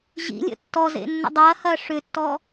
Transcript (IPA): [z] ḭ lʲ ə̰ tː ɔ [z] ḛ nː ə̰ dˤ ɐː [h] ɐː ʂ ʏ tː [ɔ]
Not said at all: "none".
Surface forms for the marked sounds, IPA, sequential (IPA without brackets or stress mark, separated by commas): ʑ, z, h, ɔ